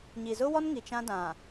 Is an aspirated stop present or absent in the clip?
absent